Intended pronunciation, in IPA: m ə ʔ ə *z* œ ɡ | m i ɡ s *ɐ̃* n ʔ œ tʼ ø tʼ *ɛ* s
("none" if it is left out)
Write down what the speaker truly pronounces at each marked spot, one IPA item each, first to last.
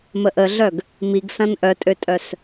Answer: ɮ, ɐ̃, œ

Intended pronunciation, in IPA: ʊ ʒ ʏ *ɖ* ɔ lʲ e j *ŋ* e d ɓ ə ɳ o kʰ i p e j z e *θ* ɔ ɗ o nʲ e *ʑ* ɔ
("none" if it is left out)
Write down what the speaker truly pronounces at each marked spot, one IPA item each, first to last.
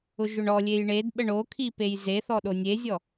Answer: ɳ, ɳ, θ, zʲ

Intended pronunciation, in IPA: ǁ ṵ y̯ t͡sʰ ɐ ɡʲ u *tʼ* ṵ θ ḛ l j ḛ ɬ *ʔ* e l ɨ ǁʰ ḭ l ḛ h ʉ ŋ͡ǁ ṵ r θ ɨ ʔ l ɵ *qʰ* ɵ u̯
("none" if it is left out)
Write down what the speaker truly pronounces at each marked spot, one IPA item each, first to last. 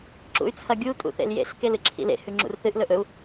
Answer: tʼ, k, ʔ

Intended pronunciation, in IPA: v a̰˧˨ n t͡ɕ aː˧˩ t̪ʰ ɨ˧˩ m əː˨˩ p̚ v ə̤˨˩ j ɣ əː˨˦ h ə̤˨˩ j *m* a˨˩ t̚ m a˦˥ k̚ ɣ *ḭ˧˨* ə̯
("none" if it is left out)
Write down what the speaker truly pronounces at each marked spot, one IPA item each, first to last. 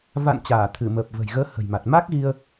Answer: m, i˧

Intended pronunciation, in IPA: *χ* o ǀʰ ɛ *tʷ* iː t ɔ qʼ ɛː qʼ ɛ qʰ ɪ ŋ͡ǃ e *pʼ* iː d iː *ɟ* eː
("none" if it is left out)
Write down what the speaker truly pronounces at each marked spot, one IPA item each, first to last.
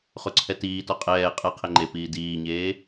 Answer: χ, t, p, ɲ

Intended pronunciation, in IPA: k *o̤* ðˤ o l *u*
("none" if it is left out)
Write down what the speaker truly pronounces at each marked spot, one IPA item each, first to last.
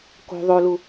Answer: o̤, u

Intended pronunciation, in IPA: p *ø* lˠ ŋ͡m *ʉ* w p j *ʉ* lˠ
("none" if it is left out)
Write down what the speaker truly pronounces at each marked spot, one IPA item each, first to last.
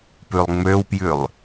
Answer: ʉ, ø, ʉ

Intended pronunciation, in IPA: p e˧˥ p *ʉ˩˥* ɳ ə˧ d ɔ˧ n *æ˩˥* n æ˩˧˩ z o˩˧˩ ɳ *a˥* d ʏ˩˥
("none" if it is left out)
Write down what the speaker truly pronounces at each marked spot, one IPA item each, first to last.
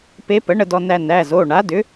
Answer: ə˩˥, æ˧, a˩˥

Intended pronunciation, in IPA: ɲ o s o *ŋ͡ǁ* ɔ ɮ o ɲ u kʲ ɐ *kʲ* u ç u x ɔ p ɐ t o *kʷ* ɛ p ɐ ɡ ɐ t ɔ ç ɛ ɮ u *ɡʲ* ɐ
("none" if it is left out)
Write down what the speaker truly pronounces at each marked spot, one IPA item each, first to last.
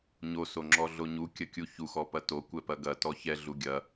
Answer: ŋ͡ǁ, kʲ, kʷ, ɡʲ

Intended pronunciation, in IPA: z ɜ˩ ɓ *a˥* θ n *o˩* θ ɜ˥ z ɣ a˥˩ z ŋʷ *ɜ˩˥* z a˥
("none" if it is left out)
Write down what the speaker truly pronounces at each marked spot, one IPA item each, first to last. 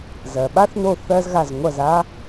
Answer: a˥, o˥˩, ɜ˥˩

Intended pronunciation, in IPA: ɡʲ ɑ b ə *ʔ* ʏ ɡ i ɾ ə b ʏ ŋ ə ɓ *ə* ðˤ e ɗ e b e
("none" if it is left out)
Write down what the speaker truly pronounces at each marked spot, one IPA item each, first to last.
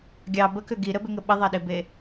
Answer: k, ə

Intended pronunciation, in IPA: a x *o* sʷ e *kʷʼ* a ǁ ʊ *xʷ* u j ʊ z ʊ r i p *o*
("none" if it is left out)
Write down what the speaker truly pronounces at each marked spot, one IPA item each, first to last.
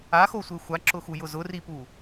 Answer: o, xʷ, x, u

